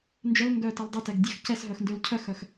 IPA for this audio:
n d͡ʒ œ l ŋ ɡ œ t ɛ l dˤ ə t ɛ ɡ dʲ ə x c ɛ s ɦ œ x n d ø l cʰ œ x œ x

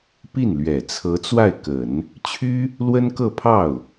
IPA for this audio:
p i˥˩ n l ɥ ɛ˨˩ t͡sʰ ɤ˧˥ t͡s w a˥˩ ɪ̯ k ə˨˩˦ n | t͡ɕʰ y˥ | l w ə˥ n k ɤ˥˧ pʰ ɑ˥˩ ʊ̯

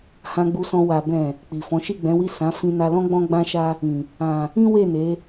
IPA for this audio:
h ã˧ ɡ͡b u˧ s ɔ̃˧ w a˨ b ɛ̃˨ | k͡p i˨ f ɔ̃˨˦ ʃ i˦˨ ɡ͡b ɛ̃˨˦ w i˦˨ s ã˨˦ f ĩ˦ n a˦ l ɔ̃˦ ɡ͡b ɔ̃˦ ɡ͡b ã˦ ʃ a˦ | ĩ˨ | ã˨ | ĩ˦ w e˦˨ n e˨˦

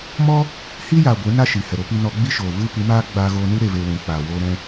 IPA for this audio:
m ɔ˦ | h i˦ j aː˨ ɡʷ ɨ˨˦ n a˦ ʃ i˨ h ɛ˨ ɾ o˧ p i˧ n ɔ˧ ɡ͡b i˦ ʃ oː˨ v ɨ˦ p ɨ˨˦ m aː˦ ɡ͡b aː˧ ɣ oː˧ n ɨ˦ ɾ e˧ v e˧ w ũ˨ k͡p aː˨ w oː˧ ɾ ɛ̃˧

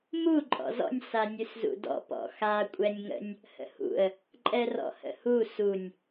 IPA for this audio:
m u ǃʼ ɔ̰ z ɔ̰ nʲ s a nʲ ʉ s z ṵ d ɔ̰ p ɔ̰ x a kʷʼ ɛ nʲ ŋ ə̰ nʲ | h ə̰ h ṵ ə̯ | ǃʼ ɛ r ɔ̰ h ə̰ h u s u nʲ

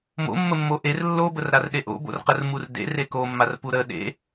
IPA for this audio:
m o̰ mː ə mː o ʔ e r lː o b ə r ɾ a r ɗ e ʔ o̰ b o̰ r q ə r m u r d ḛ r e k o mː a r p u ɾ ə ɗ ḛ

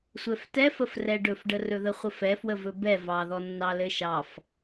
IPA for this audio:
sʷ ɛ f t ɛ f ə f r ɛ ɖ ɵ f ɖ ə r ɵ ð ə χʷ ə f ɛ f w ə v ɵ b ɛ v ɑ ð ɔ nː ɑ l ɘ ʃ ɑ f

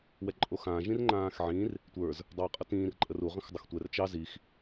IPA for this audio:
w ɛ ǃʼ o x ãː ʒ ĩ r ŋ͡ǃ ãː x ʕ ĩ r | tʷ ə˞ z | dˤ əː qʼ ʌ t ĩː r ǃʼ ə r u ʁ ə̃ x dˤ ʌ x tʷ ɛ r t͡ʃ ɑ z i x

